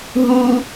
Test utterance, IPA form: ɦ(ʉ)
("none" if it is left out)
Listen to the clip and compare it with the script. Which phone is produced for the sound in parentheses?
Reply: u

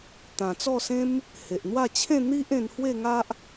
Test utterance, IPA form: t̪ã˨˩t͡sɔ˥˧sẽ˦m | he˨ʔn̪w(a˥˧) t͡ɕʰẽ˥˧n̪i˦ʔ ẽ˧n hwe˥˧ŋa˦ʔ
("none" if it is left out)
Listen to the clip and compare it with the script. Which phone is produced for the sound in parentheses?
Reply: a˥˧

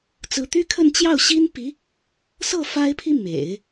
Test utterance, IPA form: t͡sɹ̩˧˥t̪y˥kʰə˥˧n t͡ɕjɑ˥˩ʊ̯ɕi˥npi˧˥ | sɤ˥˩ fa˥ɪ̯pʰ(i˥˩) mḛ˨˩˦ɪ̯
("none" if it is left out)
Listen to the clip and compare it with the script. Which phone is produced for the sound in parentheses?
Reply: i˥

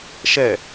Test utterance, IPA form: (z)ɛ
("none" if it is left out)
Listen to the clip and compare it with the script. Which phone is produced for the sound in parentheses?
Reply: ʃ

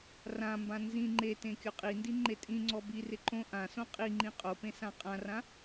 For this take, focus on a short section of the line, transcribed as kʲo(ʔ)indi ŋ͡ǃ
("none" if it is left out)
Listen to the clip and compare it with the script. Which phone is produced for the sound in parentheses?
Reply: qʼ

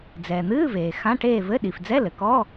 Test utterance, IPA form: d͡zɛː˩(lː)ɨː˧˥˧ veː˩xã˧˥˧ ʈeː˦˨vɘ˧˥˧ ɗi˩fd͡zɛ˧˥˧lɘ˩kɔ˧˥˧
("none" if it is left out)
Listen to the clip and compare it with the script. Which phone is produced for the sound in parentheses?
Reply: n̪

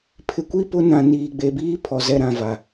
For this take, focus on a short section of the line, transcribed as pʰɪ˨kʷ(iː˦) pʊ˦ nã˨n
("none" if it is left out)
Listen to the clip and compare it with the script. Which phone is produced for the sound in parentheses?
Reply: i˦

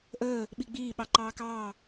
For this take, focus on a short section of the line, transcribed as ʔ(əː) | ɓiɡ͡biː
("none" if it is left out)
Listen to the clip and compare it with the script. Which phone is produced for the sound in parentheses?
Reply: əː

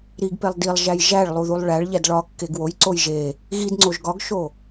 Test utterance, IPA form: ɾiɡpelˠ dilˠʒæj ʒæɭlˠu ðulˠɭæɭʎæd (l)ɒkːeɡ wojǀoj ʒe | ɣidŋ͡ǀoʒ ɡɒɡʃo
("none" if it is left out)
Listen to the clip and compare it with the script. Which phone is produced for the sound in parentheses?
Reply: ɭ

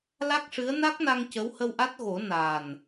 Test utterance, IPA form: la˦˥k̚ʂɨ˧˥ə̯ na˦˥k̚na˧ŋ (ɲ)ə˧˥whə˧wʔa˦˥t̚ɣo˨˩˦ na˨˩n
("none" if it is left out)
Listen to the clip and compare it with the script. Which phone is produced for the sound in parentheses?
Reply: c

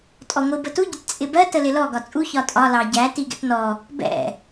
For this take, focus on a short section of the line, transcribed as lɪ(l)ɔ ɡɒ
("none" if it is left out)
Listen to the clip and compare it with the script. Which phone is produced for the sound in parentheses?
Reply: l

